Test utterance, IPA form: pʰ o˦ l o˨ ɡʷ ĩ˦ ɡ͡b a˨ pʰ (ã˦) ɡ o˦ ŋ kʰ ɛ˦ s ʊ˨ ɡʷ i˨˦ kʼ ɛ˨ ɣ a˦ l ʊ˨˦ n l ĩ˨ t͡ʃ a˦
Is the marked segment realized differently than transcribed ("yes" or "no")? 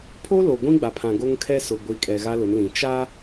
yes